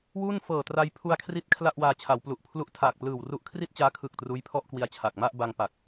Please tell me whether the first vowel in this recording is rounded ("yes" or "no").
yes